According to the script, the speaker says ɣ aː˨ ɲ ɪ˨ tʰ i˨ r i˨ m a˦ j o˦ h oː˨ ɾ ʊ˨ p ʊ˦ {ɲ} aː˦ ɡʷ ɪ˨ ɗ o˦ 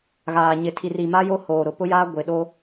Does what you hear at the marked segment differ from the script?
yes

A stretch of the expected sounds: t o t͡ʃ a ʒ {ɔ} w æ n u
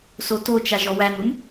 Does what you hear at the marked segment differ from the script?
no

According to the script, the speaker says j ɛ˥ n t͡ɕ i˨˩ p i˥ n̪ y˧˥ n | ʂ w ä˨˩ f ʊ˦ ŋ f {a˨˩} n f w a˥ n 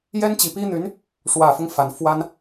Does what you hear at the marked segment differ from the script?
no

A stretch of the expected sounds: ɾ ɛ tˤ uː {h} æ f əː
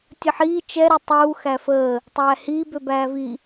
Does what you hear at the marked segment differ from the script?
yes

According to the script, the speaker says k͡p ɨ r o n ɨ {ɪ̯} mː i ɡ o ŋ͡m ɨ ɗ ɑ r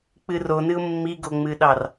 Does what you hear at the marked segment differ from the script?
yes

